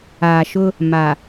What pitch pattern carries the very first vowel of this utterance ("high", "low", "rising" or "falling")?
low